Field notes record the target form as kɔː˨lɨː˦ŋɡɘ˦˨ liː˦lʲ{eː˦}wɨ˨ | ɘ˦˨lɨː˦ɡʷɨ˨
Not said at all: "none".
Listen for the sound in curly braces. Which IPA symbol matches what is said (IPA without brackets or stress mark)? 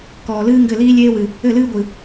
eː˦